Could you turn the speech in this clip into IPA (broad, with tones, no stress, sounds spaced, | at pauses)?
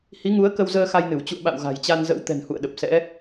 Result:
h i˨˦ ŋ u˨˦ ə̯ k ə˧ w z əː˧ x a˧ j n ɨ˧˩ w t͡ɕ ṵ˧˨ ə̯ ɓ a̰˧˨ w ɣ a̤˨˩ j t͡ɕ a˧ n z ə̰˧˥ w t̪ ɛ̤˨˩ n h ṵ˧˨ ə̯ ɗ ə˨˩ p̚ s ɛ̰˧˥